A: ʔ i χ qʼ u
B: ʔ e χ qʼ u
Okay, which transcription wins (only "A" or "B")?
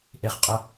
B